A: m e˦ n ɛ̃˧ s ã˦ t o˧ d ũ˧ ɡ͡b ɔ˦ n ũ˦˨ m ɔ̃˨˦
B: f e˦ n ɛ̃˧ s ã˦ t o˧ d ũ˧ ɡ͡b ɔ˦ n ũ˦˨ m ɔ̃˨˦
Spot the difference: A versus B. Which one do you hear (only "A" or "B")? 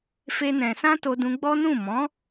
B